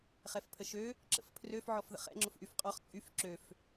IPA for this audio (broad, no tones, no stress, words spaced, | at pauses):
χɛfpʰəʃø | ǁə̰fpʰrøf ʕɔfðə̰χɛ̰ ŋ͡ǁʊfʔyfqʼɔχ t͡sʼyf ǁøf